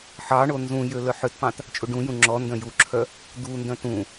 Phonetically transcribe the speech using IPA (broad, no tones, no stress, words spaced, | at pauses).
ħɑɳo nzũjø lœħøtpɑ̃t | t͡ʃʼuɖũjũ ŋ͡ǁɔndœ̃ juǁʰœ | d̪undœ̃t ũ